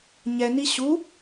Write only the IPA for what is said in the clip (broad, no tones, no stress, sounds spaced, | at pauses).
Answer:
ɲ ɛ n i ɕ u